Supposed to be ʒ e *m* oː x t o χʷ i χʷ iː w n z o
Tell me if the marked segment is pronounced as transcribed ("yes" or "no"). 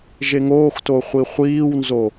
no